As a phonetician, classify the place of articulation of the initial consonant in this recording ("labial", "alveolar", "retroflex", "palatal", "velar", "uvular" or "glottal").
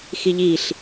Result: velar